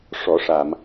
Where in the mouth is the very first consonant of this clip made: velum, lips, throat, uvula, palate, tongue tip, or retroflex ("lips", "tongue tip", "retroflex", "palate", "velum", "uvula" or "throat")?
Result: retroflex